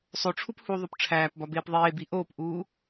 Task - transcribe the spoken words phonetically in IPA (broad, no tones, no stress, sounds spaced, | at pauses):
sˤ o ʈ͡ʂʰ u p h u ðˤ o p ʈ͡ʂʰ æː p b ɒ b eː p ðˤ eː b i ʔ oː p ʔ uː